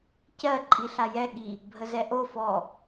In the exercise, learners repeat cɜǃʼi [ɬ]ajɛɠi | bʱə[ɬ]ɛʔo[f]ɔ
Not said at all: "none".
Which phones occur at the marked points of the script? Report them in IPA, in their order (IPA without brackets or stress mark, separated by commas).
ɬ, z, f